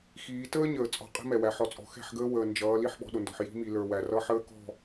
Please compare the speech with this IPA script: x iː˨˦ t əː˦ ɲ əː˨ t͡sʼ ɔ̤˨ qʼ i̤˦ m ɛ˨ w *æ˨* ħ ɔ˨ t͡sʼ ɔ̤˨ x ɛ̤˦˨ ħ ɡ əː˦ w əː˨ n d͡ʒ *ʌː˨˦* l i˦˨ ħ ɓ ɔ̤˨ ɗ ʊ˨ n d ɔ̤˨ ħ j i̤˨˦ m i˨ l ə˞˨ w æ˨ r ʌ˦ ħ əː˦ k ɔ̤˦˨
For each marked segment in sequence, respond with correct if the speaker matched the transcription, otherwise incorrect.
correct, correct

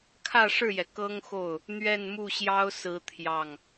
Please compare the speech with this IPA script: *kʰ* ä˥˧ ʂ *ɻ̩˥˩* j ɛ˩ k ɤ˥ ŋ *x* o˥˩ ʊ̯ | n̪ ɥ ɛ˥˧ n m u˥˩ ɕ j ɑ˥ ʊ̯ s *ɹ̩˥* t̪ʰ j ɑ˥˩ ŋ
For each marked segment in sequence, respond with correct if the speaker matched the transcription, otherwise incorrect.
correct, correct, correct, correct

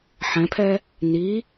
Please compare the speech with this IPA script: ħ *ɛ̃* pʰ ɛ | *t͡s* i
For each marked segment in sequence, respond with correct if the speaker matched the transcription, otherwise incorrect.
correct, incorrect: n

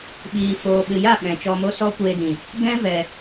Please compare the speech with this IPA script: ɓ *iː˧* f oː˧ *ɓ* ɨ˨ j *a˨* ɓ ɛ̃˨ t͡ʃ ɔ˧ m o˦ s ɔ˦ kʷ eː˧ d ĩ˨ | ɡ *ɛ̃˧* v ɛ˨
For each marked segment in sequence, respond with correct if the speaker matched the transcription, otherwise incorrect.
correct, correct, incorrect: a˦˨, incorrect: ɛ̃˦

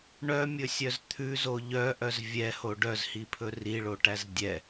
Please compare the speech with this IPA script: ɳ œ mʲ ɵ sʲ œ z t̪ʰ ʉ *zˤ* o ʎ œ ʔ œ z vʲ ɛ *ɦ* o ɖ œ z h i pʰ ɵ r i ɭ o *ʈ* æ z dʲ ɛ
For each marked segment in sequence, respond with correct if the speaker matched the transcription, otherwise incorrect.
incorrect: z, incorrect: h, correct

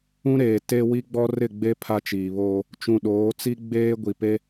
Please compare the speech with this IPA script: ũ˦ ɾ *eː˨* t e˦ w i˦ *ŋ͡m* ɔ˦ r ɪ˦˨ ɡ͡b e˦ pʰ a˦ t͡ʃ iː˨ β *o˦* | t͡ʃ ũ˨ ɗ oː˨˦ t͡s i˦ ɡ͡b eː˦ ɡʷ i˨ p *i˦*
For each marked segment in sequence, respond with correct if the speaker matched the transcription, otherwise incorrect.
correct, incorrect: ɡ͡b, incorrect: oː˦, incorrect: e˦

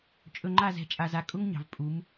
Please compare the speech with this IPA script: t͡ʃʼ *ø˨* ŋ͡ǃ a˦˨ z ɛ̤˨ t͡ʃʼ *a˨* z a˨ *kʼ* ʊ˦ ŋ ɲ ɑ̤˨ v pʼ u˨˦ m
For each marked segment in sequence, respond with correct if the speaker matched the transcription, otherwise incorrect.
incorrect: ɵ˨, correct, correct

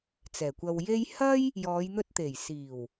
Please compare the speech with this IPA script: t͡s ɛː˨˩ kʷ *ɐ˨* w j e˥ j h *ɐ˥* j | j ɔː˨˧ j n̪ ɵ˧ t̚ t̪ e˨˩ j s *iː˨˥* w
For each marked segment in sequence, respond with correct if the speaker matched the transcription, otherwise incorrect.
incorrect: ɐ˧, correct, incorrect: iː˨˩

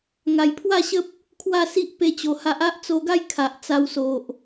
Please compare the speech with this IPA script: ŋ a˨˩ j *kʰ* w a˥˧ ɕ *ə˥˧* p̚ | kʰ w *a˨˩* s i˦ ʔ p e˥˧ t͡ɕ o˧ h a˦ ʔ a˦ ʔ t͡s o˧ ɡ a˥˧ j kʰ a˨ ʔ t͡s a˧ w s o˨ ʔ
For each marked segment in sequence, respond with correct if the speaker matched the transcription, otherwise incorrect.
incorrect: pʰ, incorrect: ə˦, incorrect: a˥˧

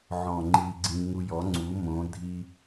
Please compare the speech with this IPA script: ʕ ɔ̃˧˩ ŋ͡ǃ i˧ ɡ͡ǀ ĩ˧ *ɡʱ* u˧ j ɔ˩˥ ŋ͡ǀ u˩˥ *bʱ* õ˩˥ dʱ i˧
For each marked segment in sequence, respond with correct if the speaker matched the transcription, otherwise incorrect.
incorrect: ŋ, incorrect: m

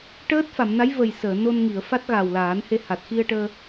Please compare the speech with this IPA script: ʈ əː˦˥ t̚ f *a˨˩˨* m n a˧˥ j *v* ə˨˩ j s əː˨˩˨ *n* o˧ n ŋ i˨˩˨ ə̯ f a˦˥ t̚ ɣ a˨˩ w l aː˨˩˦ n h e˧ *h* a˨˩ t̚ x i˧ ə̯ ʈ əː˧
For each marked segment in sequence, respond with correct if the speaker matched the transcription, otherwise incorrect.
correct, correct, correct, correct

